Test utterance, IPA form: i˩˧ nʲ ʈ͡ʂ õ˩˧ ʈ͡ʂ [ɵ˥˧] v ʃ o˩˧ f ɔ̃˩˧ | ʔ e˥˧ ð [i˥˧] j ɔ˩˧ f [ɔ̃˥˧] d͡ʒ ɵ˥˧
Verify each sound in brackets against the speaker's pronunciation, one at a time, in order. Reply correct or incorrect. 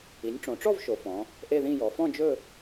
incorrect: ɔ˥˧, incorrect: ĩ˥˧, correct

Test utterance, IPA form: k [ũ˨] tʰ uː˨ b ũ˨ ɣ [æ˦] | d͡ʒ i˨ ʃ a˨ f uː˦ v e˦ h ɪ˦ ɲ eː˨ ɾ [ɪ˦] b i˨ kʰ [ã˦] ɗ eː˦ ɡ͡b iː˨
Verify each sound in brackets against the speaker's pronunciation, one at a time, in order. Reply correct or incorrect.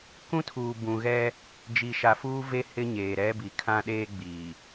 incorrect: ũ˦, incorrect: ɛ˦, incorrect: ɛ˦, correct

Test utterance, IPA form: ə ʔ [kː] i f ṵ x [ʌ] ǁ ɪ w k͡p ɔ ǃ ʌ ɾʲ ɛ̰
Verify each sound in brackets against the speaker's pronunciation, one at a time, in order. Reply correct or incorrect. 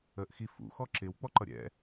incorrect: x, incorrect: ɔ

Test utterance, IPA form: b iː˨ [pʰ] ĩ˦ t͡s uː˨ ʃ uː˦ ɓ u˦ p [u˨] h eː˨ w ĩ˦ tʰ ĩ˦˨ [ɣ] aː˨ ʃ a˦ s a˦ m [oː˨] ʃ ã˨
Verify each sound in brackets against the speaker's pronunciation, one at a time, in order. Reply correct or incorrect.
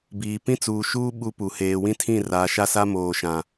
incorrect: p, correct, incorrect: r, correct

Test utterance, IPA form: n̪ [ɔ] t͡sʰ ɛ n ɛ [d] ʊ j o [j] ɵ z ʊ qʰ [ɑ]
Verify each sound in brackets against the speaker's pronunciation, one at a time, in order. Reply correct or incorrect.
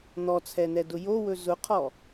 correct, correct, incorrect: w, incorrect: ɔ

